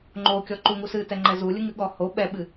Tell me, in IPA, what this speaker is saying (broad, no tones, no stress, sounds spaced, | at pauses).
ŋ͡ǃ o kʲ ɔ ǃ u ŋ u s ɨ t ɛ ŋ͡ǃ ɛ z u lʲ ɨ ŋ ɨ ɠ ɔ h o ɓ ɛ ɓ ɨ